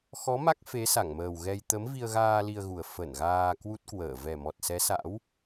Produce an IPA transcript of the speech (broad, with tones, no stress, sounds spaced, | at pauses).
x ɔ˨˦ m a˦˥ k̚ f e˨˦ s a˧˩ ŋ m əː˨˩ w ɣ ɛ˧ j t̪ ə˨˦ m v i˧ ə̯ ɣ aː˧ l i˧ ə̯ ɣ u˨˩ ə̯ f ə˧˩ n ɣ aː˧ k w u˦˥ t̚ k w əː˧˩ v ɛ˨˩ m ɔ˨˩ t̚ s ɛ˨˦ s a̰˧˥ w